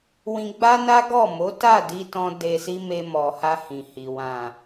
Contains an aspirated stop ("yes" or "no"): no